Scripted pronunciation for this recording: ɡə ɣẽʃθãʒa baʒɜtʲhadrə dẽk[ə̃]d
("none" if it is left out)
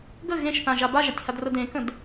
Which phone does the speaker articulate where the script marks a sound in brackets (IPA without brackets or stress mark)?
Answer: ə̃